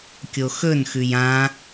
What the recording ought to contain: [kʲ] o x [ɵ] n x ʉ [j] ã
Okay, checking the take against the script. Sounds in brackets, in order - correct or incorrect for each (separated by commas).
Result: correct, correct, correct